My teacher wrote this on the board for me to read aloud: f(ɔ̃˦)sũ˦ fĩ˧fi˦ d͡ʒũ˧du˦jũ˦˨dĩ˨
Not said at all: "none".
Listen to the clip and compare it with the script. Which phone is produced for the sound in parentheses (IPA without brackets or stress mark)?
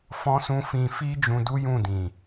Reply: ɔ̃˦